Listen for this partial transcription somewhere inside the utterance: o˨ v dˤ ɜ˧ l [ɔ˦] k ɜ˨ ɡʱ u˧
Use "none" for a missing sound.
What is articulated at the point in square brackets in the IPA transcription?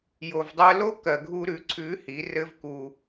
o˦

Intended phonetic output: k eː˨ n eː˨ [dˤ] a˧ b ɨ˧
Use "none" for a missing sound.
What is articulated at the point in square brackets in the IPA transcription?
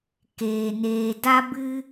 d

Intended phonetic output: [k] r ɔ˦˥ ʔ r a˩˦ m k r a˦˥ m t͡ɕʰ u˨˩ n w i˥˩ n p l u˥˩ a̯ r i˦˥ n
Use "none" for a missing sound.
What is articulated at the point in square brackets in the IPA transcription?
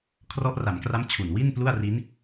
kʰ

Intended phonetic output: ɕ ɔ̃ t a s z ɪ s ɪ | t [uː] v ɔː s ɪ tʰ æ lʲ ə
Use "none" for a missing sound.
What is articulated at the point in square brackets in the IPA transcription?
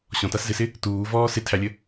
uː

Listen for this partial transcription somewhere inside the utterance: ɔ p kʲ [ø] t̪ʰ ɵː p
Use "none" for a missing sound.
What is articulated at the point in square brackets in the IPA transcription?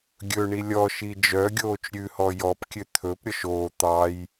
ø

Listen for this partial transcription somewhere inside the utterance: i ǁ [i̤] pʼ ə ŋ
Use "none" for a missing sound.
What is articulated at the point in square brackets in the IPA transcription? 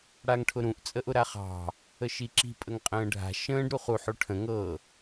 i̤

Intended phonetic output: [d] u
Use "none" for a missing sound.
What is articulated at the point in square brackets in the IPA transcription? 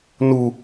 n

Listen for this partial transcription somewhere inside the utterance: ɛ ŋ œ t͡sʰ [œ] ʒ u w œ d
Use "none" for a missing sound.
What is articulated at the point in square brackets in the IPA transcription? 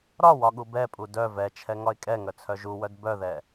œ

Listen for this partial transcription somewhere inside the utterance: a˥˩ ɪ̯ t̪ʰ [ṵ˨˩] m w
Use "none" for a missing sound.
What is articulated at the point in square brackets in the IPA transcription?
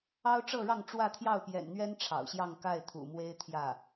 ṵ˨˩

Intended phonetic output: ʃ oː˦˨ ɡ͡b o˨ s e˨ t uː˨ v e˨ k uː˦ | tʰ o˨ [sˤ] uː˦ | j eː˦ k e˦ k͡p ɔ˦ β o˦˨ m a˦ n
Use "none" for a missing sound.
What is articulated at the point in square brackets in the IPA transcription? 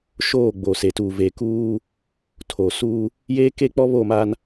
s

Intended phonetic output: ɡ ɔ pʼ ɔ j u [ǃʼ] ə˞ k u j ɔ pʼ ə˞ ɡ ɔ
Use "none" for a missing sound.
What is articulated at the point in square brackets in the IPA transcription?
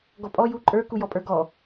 ǃʼ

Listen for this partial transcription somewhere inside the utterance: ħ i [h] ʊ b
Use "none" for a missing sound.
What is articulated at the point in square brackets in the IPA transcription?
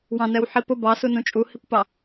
p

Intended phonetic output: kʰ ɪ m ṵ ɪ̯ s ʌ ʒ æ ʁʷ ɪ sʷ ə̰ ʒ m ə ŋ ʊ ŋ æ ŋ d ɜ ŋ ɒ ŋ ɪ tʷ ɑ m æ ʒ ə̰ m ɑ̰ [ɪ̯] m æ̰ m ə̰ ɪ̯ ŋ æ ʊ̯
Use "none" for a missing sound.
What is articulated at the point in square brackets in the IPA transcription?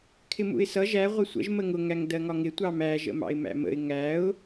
ɪ̯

